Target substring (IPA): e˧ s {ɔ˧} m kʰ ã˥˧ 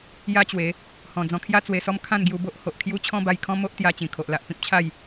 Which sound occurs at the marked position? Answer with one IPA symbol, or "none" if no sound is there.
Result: ɔ˦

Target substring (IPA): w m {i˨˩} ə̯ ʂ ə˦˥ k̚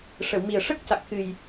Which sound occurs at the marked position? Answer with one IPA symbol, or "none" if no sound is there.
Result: i˨˩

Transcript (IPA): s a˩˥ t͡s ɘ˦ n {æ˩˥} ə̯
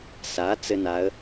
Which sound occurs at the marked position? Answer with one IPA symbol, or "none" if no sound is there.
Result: a˩˥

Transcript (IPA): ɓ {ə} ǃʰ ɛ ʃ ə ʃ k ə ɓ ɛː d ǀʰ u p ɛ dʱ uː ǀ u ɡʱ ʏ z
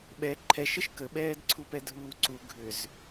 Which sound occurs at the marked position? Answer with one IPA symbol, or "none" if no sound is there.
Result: ɛ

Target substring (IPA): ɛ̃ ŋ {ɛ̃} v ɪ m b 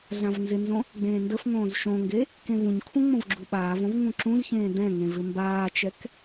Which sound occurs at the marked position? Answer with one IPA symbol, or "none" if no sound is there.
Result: ẽ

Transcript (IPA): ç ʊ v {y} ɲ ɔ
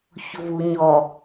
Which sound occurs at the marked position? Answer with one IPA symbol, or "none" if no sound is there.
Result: u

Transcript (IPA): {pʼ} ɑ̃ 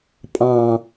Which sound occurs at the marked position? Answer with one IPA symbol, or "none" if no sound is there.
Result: pʼ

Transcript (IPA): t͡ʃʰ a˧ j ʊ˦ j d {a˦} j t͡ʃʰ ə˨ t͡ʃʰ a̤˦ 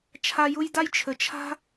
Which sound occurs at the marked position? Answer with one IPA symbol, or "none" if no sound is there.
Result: a˦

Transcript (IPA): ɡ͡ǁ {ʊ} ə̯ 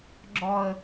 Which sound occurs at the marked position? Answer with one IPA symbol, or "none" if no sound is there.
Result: ɔ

